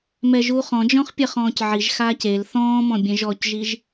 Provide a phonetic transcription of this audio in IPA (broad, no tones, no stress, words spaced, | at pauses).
mɛʒuːχɔ̃d͡ʒɔ̃χ pʲɛχɔ̃ːcʕiʒxaːc el θɔ̃ːmɔ̃ bʲẽʒɔcʒiʒ